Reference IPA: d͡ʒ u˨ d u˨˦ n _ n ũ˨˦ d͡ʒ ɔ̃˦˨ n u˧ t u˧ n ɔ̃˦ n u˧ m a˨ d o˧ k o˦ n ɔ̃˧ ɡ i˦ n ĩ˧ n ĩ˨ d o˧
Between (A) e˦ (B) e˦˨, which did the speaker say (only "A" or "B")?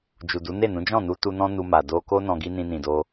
B